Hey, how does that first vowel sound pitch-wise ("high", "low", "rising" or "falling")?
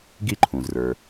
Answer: falling